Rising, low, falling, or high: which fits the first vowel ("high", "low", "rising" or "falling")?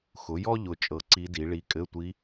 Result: rising